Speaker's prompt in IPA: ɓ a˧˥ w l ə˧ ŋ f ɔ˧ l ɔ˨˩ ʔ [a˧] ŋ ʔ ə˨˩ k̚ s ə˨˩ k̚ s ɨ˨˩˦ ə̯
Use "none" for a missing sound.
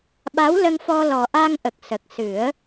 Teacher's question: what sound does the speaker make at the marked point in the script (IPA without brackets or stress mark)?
a˧